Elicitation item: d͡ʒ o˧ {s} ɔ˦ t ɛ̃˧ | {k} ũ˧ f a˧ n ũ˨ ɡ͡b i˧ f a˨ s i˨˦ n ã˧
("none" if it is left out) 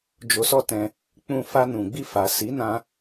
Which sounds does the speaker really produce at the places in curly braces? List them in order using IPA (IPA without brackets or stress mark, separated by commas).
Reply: s, k͡p